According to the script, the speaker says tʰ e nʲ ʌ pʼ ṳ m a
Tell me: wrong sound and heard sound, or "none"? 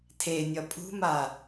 none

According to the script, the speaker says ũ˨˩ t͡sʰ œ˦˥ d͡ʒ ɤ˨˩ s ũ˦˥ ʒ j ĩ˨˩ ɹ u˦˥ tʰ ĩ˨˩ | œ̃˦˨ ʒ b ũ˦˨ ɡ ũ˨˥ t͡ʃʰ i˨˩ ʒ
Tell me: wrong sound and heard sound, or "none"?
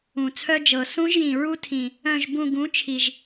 none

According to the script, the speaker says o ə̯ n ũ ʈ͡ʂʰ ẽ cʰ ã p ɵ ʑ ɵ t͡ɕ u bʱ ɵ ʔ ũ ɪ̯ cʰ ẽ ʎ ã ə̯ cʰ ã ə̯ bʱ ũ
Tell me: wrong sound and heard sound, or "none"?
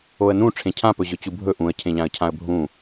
ɪ̯ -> ə̯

